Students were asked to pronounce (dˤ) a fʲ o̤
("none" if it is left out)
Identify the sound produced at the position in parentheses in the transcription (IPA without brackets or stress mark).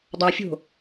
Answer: dˤ